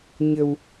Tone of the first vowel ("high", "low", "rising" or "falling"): low